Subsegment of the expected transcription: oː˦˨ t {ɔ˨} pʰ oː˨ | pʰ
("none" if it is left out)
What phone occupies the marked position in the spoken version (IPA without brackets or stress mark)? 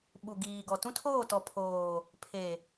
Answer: ɔ˨